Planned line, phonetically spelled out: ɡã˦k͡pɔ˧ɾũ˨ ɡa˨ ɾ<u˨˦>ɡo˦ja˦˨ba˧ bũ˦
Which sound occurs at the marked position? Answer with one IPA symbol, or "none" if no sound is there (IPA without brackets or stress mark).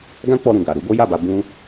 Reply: u˨˦